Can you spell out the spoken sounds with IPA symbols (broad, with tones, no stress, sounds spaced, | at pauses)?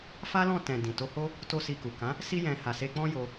f a˦ l ɔ̃˦˨ t ɛ̃˨ d ĩ˨ t o˧ h o˦ | t o˦ s i˧ k u˨ k ã˨˦ | s i˦ j ɛ̃˧ h a˨ s e˧ k͡p ɔ̃˦ j o˧